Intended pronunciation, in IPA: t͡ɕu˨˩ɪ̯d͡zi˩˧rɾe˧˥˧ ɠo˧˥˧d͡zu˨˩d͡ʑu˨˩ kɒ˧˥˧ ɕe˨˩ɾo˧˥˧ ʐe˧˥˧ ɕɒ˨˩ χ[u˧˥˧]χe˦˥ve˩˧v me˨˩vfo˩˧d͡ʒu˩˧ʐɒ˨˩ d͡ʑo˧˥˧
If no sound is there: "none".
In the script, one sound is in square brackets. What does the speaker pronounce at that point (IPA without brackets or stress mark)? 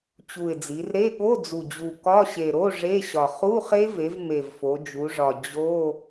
u˧˥˧